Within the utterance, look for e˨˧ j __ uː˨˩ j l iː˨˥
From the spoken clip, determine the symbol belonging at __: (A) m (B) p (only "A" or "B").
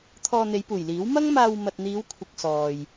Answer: B